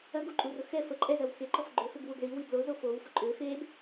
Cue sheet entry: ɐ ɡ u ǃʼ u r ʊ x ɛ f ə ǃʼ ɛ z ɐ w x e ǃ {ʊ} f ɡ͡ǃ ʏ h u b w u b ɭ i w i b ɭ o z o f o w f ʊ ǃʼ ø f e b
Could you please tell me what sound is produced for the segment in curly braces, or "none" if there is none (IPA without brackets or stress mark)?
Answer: ɔ